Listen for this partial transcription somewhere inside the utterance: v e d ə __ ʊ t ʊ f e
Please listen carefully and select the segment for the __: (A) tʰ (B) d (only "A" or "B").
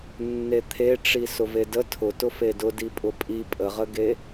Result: A